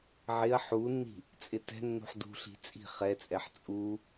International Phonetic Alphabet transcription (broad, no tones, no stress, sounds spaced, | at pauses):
ʕ ɪ ɐ̯ ħ u nː i̤ | t͡sʼ ɪ t ɛ̤ nː ṳ ħ d ṳ ɬ i̤ t͡sʼ i̤ χ ɛ t͡sʼ ɛ ħ t͡sʼ u